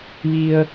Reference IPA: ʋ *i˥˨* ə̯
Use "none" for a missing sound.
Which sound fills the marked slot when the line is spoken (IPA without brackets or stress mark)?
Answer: i˧